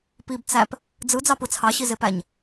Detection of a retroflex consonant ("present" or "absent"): absent